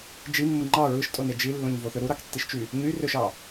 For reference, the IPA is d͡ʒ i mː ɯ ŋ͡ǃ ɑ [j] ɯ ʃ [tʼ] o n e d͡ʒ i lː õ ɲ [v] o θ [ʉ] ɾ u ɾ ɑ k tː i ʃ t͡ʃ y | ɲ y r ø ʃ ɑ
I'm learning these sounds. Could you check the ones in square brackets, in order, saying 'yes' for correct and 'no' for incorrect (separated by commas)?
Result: no, yes, yes, no